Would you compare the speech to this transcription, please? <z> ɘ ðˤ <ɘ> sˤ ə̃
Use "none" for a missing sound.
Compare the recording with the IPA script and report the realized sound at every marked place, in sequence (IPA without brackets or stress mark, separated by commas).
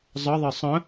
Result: zˤ, e